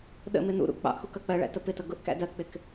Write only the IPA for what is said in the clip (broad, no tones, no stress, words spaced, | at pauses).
ɗə̰mɪ nṵɾṵ k͡pɑ̰ʔxu kʌk͡pɜɭæ̰ təpɪtʌ ɡʊʔkæ̰ dɜk͡pɪk